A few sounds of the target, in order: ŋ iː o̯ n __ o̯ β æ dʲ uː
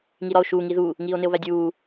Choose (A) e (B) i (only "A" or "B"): A